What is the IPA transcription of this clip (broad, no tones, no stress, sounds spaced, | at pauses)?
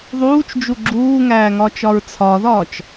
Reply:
ðˤ uː t͡ʃ d͡ʒ u ɡ͡ǁ uː ŋ æː ŋ ɒ t͡ʃ ɒ ɹ t͡sʰ ɒ ð ɒː t͡ʃ